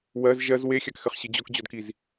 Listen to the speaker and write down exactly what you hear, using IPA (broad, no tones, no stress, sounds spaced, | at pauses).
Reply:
w ɜ z ʒ ɜ z w e xʲ a k x ɘ χ ɕ ɨ d͡ʑ ɔ k d͡ʑ ɔ d k i z